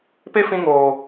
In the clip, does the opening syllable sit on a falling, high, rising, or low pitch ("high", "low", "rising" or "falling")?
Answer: high